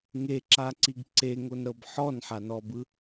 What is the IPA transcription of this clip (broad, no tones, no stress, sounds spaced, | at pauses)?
ŋ e ǁ a ǀ i ɡ ǀ e ŋ o n ɾ ɤ b ħ ɔ n ħ a n ɔ b ɯ